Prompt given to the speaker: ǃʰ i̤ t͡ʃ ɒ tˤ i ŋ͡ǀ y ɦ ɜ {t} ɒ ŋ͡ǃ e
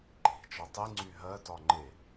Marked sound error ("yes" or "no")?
no